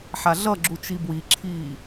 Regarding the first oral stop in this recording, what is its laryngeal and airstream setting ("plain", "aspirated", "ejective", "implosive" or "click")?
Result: click